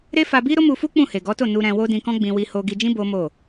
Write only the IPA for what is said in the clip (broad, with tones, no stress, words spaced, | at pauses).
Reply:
ɾe˦fa˧bi˦ ɾo˦mu˧fu˦ k͡pũ˦˨he˨ɡɔ˨˦to˦˨ nu˧ɾɛ̃˧ wo˦dĩ˧kɔ̃˦ɡ͡bĩ˧ wi˧ho˧ɡi˧d͡ʒĩ˦ bo˦mo˦˨